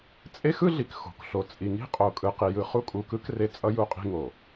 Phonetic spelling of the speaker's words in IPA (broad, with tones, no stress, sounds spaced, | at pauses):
t͡sʼ e˦ x ɯ˦ ɮ i˨ k x o̤˨ k ɬ o˨ t͡sʼ i˨ ŋ i̤˦ qʼ o˨ kʼ ɯ˨ q i˨ j ɯ˨ χ u˦ kʼ u˨ k ɯ˦ k r e˦ t͡sʼ ʌ˦ j u˦˨ qʼ i̤˦ ŋ o˨